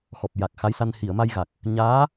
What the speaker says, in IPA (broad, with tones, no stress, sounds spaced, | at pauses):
x ɔ˨˩ p̚ j a˨˩ k̚ x a˧˥ j s a˧ n h i˨˩˨ ə̯ m a˧ j ɣ a˨˩ k̚ | ɲ aː˧˥